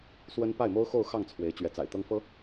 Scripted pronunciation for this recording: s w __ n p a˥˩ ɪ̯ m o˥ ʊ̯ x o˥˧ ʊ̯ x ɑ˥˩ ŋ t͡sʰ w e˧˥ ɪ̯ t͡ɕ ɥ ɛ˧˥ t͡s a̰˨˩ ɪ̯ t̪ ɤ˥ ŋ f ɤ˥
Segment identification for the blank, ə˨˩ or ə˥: ə˥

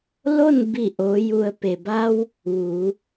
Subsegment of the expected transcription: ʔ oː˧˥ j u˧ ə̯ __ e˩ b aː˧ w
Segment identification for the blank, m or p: p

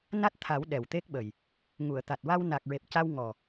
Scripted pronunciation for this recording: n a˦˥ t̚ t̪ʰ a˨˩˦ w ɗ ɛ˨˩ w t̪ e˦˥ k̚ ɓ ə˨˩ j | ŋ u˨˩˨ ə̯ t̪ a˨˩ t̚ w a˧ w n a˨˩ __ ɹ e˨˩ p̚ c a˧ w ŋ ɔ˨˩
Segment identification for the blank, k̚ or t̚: k̚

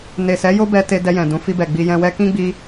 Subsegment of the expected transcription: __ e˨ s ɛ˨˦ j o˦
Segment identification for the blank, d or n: n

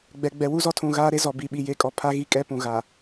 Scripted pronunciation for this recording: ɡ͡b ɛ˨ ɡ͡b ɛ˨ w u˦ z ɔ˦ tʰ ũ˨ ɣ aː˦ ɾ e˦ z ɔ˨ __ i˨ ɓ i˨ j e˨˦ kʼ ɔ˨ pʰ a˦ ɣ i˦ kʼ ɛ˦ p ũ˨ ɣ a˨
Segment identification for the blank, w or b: b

